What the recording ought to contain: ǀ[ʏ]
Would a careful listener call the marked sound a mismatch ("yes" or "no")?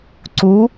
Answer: yes